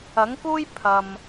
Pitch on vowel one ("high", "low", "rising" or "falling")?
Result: rising